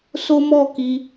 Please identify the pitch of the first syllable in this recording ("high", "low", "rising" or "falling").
high